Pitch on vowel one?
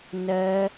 rising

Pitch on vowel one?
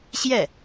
falling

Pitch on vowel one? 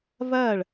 falling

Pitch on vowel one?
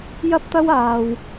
high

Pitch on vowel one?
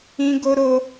high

